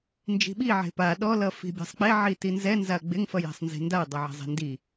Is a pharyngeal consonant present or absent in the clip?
present